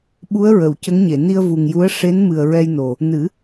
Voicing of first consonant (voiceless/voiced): voiced